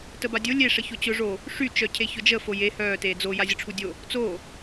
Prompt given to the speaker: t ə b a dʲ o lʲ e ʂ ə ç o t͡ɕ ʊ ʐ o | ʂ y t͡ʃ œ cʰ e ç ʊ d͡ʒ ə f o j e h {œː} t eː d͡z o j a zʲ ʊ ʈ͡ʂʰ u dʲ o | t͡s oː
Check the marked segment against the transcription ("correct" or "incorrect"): correct